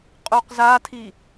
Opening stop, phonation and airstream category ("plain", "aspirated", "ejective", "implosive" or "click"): ejective